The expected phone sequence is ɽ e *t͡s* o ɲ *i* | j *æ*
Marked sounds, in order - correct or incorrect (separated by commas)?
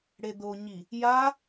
incorrect, correct, incorrect